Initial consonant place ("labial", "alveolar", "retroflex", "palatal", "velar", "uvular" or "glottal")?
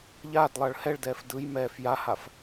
palatal